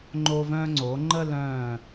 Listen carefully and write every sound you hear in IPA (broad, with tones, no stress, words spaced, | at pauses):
ŋ͡ǃoː˧vœ̃ː˧ŋ͡ǀoː˩˧ ŋ͡ǃə˥˧lœ̃ː˧˩